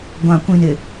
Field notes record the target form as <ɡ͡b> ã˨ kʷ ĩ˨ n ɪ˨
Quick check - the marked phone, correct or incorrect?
incorrect